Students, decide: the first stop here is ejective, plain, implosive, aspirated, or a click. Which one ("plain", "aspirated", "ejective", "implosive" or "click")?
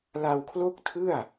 aspirated